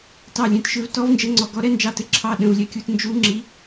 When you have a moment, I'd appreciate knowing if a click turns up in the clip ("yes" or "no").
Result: yes